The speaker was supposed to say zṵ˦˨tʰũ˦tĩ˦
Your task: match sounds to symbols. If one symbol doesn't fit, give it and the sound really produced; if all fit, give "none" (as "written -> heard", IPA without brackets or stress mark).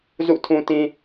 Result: none